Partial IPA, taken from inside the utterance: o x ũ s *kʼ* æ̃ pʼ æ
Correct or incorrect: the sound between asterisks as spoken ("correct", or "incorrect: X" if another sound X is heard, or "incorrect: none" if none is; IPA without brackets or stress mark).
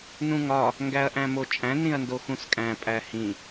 correct